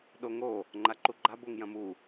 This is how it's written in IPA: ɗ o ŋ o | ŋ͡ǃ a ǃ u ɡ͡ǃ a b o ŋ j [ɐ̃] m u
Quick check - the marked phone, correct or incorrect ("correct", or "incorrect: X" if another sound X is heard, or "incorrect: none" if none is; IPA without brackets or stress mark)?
correct